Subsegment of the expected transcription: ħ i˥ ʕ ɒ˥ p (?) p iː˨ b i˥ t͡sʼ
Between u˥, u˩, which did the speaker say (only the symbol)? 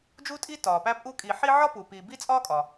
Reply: u˩